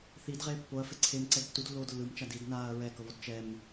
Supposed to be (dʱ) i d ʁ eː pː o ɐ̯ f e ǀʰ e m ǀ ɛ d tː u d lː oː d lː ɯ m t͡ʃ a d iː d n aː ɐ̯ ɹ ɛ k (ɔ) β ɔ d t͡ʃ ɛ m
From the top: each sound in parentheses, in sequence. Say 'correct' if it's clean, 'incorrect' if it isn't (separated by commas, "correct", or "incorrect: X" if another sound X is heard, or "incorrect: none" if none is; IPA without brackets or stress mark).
incorrect: θ, incorrect: ɤ